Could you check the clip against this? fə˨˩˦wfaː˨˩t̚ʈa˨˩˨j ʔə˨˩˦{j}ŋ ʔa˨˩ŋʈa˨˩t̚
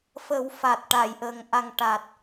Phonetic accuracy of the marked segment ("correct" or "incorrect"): incorrect